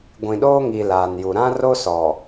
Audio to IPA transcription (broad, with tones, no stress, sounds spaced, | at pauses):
ɡʷ ĩ˨ ɗ oː˦ ŋ i˨ l aː˨ n j u˨ ɾ ã˦ r o˦ s ɔ˨